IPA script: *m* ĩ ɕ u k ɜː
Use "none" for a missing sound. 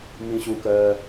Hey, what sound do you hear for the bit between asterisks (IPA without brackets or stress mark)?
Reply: m